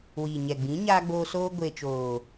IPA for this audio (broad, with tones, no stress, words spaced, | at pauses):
wiː˨ɲɛ˨ɡ͡bĩ˨˦ ɲaː˧ɡ͡boː˧ soː˧ɡʷeː˨t͡ʃoː˨